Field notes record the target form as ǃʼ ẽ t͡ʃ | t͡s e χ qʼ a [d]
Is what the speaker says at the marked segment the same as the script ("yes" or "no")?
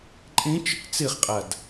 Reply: yes